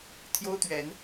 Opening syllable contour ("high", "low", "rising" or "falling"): high